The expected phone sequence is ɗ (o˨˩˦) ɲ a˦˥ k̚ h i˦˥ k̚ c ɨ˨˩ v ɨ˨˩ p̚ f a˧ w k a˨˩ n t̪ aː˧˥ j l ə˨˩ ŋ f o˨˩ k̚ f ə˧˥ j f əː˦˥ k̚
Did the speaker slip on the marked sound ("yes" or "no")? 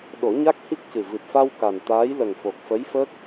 no